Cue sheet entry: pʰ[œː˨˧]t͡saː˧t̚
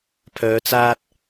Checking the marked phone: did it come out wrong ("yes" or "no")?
no